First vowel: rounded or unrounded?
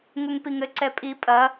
rounded